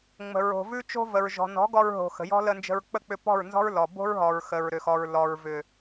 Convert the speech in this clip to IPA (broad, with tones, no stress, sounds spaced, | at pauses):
ŋ͡m ə̤˨ ɹ o̤˨ v ʉ˦ t͡ʃ o̤˦ v ə˨ ɹ ʒ ɔ̤˨ n ɔ̤˨˦ ɡ ɔ˧ ɹ ɦ o̤˨ x ə̤˨ j ɔ̤˦ l ə˧ n d͡ʒ ə̤˧ ɹ k͡p ə˦˨ k͡p ʏ˧ p ɔ̤˦˨ ɹ n z ɔ̤˦ ɹ l ɔ˨ b o̤˦ ɹ ɦ ɔ˨ ɹ x ə˨ ɹ ɾ ʏ˨ x ɔ˨ ɹ l ɔ˨ ɹ v ʏ˨